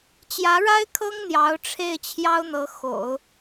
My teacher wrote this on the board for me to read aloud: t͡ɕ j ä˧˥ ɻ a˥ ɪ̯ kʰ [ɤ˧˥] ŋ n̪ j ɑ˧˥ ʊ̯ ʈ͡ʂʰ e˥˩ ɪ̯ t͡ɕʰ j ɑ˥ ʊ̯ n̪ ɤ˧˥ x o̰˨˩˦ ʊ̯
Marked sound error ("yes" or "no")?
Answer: yes